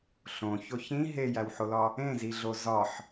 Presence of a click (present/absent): absent